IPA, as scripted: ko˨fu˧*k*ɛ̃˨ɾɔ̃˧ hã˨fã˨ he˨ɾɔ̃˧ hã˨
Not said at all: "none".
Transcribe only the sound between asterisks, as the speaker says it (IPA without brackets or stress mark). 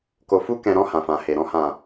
k